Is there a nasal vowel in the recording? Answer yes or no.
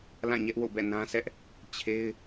yes